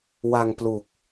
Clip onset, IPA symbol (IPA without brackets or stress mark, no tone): w